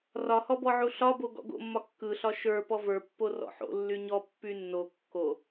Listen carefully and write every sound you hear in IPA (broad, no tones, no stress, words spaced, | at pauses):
rɒhɔbɔʕu ɬɒbo ɡɔ̰ɡo̰mːɒ kːɯɬɒ ʃə˞ pɔvə˞pːo rɔ̰ħo̰ lːyɲɔ pːynːo kːo